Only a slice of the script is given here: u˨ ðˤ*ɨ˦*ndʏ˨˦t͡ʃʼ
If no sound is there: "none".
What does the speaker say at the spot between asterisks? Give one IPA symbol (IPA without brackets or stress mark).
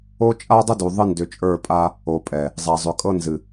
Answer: ɨ˦